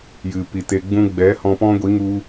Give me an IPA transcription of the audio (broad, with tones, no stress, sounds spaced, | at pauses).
j ɨ˨ p i˨ t e˧ ɡ͡b ũ˦ ɡ͡b ɛ˨˦ h ɔ̃˧ p ɔ̃˦ ɡʷ i˨˦ ŋ u˧